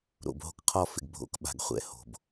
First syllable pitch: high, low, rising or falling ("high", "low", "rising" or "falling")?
low